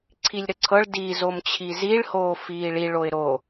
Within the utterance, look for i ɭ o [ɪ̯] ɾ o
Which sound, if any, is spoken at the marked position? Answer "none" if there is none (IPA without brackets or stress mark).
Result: ɪ̯